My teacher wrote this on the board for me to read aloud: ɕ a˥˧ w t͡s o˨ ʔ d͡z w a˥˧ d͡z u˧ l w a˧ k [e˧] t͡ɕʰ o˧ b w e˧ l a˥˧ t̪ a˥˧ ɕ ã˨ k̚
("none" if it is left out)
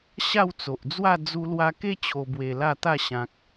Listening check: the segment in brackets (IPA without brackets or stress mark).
e˦